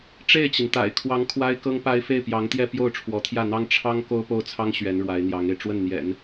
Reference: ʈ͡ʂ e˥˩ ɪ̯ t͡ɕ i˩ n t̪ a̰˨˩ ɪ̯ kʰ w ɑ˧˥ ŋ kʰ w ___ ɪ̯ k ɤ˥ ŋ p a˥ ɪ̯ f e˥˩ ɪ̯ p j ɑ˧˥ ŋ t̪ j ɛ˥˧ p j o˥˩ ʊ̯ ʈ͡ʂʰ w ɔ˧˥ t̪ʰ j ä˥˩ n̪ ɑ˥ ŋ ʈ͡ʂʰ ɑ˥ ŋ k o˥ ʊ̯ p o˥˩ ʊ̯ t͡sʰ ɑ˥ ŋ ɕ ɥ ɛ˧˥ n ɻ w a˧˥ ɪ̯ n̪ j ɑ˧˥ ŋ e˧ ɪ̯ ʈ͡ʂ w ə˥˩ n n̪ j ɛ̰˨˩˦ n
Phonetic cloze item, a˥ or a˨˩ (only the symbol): a˥